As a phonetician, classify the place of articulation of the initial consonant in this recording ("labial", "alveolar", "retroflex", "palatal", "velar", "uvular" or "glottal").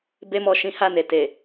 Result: labial